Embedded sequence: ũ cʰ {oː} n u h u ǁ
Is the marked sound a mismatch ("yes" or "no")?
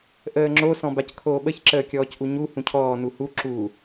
yes